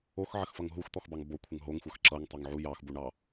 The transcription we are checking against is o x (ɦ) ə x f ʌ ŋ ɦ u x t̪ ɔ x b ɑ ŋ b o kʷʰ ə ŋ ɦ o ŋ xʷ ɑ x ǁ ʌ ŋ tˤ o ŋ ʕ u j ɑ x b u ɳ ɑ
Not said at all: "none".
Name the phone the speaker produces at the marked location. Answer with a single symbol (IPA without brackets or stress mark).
ʕ